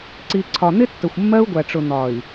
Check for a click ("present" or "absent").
present